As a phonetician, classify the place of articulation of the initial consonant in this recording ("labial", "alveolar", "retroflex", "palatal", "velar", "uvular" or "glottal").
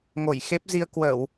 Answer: velar